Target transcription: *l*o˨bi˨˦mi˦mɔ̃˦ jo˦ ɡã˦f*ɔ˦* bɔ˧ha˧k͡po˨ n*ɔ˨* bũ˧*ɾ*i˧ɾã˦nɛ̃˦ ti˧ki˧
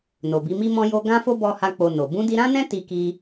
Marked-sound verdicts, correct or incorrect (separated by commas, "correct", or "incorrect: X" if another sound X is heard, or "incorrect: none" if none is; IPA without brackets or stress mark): incorrect: n, incorrect: o˦, incorrect: o˨, incorrect: d